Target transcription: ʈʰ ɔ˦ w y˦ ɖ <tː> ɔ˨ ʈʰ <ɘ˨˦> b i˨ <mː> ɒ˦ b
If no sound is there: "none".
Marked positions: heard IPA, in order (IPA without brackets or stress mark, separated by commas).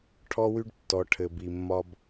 tː, ɘ˨, mː